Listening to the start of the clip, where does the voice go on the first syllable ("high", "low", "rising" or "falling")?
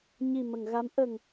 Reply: low